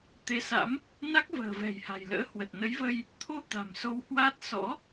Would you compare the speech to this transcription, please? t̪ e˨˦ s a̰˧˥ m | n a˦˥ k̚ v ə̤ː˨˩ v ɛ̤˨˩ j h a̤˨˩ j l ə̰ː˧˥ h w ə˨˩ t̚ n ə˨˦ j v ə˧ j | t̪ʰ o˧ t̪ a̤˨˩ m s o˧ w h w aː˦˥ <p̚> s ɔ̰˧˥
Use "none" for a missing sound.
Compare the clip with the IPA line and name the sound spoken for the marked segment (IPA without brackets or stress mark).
t̚